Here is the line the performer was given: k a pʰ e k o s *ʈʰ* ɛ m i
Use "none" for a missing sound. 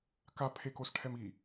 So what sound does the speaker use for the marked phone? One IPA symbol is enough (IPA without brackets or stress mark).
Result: ʈʰ